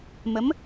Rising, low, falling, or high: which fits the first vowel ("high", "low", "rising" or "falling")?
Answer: rising